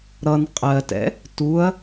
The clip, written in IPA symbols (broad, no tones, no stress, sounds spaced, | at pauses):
ɾ ʌ n qʼ ɜ t ɛ̰ | t u ɐ̯